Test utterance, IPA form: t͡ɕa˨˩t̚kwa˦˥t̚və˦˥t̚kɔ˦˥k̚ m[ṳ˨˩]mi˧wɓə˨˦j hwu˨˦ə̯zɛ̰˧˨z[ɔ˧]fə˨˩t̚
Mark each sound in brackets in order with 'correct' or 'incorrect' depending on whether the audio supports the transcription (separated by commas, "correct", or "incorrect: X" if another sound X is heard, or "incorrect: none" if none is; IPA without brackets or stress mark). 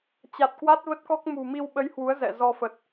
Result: correct, correct